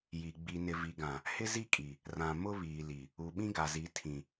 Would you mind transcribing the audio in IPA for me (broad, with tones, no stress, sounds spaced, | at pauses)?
j i˨ ɡ͡b i˨ n ɪ˨ v i˨ ɡ ã˨ | h ɪ˦ z i˦ kʼ i˨ | r ã˨ m ʊ˦ β iː˨ l i˨ | u˨ ɓ ĩ˦ ɡ a˨ z i˨˦ tʰ ĩ˨